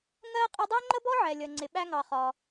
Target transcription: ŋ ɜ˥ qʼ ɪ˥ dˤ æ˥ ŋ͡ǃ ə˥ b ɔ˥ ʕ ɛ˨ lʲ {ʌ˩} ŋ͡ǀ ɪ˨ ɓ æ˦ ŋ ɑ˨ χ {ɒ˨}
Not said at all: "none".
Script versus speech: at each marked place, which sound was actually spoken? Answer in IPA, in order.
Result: ʌ˨, ɒ˨

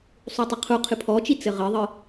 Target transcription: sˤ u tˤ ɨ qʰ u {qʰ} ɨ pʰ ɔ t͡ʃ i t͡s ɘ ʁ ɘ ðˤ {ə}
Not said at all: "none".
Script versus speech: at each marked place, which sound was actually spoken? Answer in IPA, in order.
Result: qʰ, ɨ

